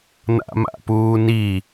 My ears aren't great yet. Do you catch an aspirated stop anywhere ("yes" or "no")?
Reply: no